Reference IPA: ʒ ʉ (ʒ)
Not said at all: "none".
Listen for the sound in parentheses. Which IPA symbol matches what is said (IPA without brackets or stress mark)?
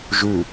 none